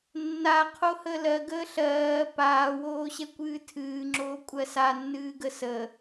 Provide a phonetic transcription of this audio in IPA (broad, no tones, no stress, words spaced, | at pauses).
nːa qʰohəːlɜɡəː ɬɜː paːwoː ɕɛkʷɨːtʰɨːŋ͡ǁoː kʷʼɜsanːɨː ɡəsə